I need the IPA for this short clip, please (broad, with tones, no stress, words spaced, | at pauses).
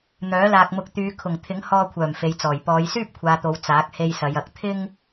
n̪œː˨˥laː˧k̚mʊ˧k̚ t̪yː˨˧kʰʊ˨˩ŋ t̪ʰɪ˨˥ŋhɔː˧kʷʰœː˨˩m fe˨jt͡sɔː˨˩j pɔː˨˧jsyː˥p̚kʷʰaː˨t̪o˨˧w t͡saː˨˥k̚ he˧jsɐ˨˧jɐ˨˥k̚ t̪ʰɪ˥ŋ